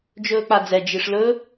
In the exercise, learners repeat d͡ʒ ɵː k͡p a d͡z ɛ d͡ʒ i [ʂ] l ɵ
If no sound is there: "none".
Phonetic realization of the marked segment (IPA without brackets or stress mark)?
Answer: ʂ